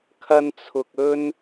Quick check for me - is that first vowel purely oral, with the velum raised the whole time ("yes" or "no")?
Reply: yes